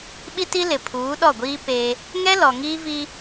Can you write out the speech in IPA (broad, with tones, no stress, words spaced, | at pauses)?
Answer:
ɓi˦ti˦ lɪ˨pʰuː˨˦ɗɔ˦˨ɡʷiː˦ peː˦ | ŋɛ˦ lɔ˨ŋiː˦viː˦